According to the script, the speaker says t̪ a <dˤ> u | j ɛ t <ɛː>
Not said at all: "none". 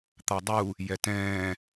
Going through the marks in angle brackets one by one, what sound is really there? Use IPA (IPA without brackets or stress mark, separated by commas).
dˤ, ɛ̃ː